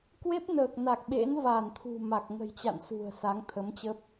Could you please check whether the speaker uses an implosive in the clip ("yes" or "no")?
yes